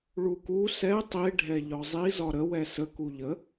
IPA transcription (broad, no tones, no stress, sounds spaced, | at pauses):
ɭ u k u s ɛ tˤ i ɖʱ ɛ ʎ ɒ zˤ i z ɒ ɾ ə w ɛ s ə k u ʎ ə